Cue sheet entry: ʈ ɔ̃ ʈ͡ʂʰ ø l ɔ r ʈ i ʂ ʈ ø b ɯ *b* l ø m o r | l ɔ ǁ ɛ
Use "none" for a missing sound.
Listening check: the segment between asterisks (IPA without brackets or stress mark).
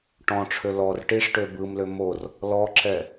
m